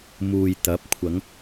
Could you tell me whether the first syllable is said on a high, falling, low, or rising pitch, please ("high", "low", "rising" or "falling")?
low